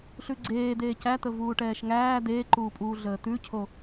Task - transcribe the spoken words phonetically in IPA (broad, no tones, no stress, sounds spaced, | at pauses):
ɬ ʉ ɡ͡ǀ eː d̪ eː c æ t̪ ə v uː ʈ ɛː ʃ ŋ æː d̪ eː ǃ uː pʼ uː ɮ əː t̪ ʉ cʰ o